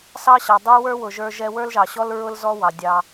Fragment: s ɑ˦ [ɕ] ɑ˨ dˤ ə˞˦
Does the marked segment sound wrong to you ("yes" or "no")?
no